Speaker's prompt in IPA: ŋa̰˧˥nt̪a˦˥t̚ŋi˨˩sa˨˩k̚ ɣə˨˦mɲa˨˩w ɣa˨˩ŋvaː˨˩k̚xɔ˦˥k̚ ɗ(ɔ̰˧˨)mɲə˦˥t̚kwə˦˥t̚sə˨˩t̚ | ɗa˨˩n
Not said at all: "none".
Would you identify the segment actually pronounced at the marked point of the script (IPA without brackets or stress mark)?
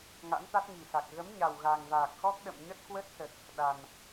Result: ə̰˧˨